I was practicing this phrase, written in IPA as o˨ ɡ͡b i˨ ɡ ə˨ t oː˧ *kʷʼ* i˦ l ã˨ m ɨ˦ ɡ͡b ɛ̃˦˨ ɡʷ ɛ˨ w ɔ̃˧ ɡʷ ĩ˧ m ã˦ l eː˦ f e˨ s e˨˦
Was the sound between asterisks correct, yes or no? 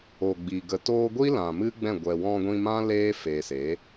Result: no